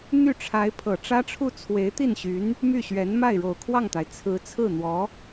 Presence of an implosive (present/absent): absent